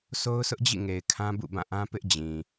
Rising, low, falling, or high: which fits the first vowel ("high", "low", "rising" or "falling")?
high